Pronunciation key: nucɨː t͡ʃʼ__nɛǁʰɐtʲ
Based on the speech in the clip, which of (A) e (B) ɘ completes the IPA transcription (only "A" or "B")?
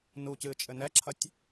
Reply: B